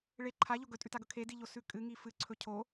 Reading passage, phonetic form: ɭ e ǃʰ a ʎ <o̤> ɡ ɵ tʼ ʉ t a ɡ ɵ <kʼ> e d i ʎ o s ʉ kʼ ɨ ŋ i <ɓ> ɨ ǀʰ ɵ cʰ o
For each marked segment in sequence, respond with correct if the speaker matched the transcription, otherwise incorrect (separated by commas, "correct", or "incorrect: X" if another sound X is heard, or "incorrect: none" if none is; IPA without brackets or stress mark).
incorrect: o, incorrect: kʰ, incorrect: f